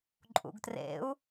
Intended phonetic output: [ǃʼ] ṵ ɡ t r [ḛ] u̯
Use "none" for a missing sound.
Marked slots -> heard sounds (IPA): ǃʼ, ḛ

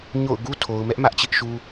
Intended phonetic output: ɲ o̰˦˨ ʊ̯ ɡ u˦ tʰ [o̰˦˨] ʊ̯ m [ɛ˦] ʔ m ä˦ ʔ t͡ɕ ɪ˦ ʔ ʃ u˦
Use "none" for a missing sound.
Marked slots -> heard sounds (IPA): o˨, ɛ˦

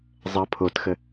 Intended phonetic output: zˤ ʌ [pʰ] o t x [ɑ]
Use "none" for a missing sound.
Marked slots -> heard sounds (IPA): pʰ, ə

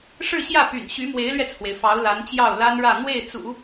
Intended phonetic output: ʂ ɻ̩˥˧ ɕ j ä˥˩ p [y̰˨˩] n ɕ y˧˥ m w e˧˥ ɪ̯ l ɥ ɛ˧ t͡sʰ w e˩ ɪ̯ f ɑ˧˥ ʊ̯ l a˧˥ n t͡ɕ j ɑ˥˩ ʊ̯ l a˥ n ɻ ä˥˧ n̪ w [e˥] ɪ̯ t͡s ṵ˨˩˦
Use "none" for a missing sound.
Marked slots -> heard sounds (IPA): y̰˨˩, e˥˩

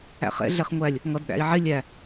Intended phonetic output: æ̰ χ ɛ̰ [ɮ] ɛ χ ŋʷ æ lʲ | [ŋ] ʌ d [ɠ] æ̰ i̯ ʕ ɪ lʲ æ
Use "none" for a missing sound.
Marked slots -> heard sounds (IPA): ɮ, ŋ, ɗ

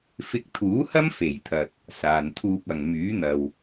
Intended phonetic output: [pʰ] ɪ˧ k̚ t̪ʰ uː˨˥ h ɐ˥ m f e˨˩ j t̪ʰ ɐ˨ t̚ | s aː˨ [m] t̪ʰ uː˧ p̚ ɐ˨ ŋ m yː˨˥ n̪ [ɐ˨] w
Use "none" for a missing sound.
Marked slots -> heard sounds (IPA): f, n, ɐ˨

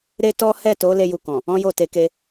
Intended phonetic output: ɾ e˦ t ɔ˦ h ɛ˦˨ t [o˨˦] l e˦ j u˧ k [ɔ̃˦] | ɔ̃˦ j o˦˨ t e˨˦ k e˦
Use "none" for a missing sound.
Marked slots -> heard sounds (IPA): o˨˦, ɔ̃˨

